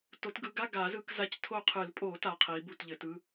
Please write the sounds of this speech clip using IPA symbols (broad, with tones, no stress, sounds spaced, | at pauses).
t o˨˦ t ɡ ɯ˨˦ ɡ a˧˥˧ ɡ a˨˩˦ z ɯ˧˥˧ k z a˧˥˧ c tʰ o˦˨ qʰ ɨ˨˩˦ l pʼ o˨˩˦ t a˨˦ qʰ i˨˦ b u˦˨ t ʎ ɘ˨˩˦ t ɯ˧˥˧